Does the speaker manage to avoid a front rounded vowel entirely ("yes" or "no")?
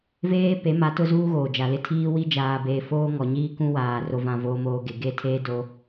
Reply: yes